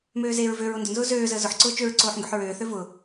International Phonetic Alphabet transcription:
møːzeːɹvøɹo ndʊnzʊː zøːzəː zʊħǀʊː t͡ʃøɹǀoːħ ŋɡøħɹøːθø vʊ

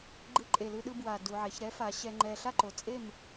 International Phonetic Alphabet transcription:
ɡ͡ǃɯ˧ ǃʼe˨˩lɯ˧ɗɯ˧ bwa˨˩ du˨˩ʕɛ˩˧ç ɾɛ˧˥fa˩˧ ɕɛ˧ŋ͡ǃɛ˧ ɬa˥˨ǃo˨˩ t͡sʼe˥˨m

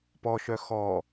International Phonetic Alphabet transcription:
pɔʃœ xɔ

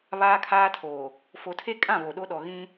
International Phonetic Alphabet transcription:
βaː˦kʰaː˦tʰoː˨ | fo˨tʰe˦kʼã˦˨ βo˨ɗo˦ɗɔ˨ ɣĩ˦

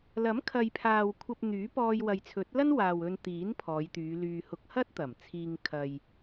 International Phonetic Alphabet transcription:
lɐ˨˥m kʰɐ˨jpʰaː˨w kʷʰɐ˧p̚ n̪yː˨˥pɔː˧jwɐ˨jt͡sʰɵ˨˥t̚ lɐ˥nwaː˨w ɵ˧nt̪iː˨˥n pʰɔː˨˧jt̪yː˨˧lyː˧ hʊ˧k̚hɐ˥t̚t̪ɐ˨˩mt͡sʰiː˧ŋ kʰɐ˧j

